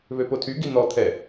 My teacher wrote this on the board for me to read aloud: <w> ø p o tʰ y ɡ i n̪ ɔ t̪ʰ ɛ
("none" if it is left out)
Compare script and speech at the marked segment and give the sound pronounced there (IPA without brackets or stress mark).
β